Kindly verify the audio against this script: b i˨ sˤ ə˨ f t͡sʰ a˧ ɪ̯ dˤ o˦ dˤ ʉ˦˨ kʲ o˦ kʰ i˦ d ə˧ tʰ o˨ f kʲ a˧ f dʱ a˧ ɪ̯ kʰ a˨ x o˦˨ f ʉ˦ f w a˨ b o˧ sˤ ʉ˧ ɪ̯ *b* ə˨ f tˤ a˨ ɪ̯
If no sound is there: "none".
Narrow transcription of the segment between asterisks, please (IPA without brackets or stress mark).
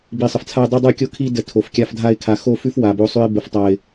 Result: b